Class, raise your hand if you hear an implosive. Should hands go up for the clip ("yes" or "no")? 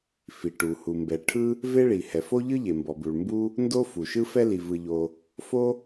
no